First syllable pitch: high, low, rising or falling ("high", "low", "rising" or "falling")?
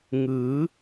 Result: rising